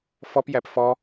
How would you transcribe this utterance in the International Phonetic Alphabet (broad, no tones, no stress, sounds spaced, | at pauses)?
f ɔ p j æ p f ɔ